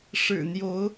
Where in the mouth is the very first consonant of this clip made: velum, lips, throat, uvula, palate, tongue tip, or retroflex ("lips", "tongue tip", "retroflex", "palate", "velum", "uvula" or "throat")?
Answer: retroflex